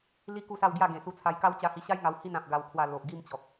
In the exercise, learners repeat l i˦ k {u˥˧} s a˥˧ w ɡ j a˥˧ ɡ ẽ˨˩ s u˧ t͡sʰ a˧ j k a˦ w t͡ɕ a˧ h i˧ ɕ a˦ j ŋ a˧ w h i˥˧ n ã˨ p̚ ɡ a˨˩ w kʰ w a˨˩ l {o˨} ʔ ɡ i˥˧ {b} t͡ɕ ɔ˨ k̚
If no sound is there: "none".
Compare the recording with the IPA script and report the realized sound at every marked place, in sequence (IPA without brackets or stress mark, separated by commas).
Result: u˥˧, o˨, m